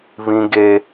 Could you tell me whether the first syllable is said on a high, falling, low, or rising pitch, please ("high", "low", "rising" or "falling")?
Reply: high